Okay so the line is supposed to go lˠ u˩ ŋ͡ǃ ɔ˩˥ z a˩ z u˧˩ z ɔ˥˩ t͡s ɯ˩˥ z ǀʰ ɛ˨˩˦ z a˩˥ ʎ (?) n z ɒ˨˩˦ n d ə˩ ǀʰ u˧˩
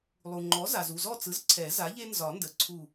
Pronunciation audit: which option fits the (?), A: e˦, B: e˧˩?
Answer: A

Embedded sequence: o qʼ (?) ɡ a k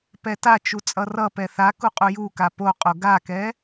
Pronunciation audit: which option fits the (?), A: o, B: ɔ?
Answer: A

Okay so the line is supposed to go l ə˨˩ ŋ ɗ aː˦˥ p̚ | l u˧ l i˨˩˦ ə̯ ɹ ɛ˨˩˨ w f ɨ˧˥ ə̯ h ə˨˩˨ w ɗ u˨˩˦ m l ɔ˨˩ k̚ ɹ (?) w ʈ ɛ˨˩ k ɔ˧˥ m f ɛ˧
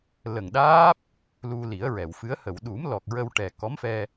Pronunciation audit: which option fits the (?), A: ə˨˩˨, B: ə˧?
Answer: B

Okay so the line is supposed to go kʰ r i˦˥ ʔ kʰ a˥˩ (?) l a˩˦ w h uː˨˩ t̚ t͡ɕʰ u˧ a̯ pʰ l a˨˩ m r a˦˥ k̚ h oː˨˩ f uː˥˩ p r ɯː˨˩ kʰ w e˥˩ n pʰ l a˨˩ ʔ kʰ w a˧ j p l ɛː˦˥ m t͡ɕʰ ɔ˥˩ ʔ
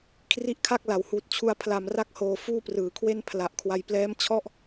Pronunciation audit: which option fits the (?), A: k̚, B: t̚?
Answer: A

